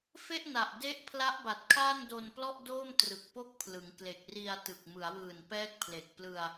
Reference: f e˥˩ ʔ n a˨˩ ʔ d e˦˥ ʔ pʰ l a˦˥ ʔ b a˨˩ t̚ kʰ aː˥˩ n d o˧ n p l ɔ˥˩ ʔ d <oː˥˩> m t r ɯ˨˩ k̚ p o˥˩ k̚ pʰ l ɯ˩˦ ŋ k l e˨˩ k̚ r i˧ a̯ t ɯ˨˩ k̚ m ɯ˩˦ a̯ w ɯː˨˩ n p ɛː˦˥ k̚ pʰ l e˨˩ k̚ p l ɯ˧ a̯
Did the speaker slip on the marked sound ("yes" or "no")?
no